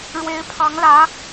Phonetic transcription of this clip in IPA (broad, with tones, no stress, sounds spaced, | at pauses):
ɻ w e˧˥ ɪ̯ pʰ ɑ˧˥ ŋ l ä˧˥